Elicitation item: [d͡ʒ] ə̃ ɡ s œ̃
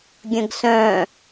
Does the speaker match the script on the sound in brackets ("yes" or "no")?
no